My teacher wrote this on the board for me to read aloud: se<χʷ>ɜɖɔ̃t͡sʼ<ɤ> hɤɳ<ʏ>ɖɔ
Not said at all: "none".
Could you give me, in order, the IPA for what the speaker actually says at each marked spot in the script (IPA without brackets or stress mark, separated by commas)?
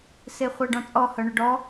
χʷ, ɔ, ʏ